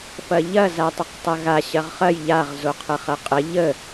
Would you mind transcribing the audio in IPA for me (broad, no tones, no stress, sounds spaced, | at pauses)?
f ɐ ʎ ɐ z a tˤ ə q tˤ ɐ ɣ a ɕ ɐ ʁ χ ɐ j ʎ a ʁ z o qʰ ə χ ɐ qʼ ə ʎ ə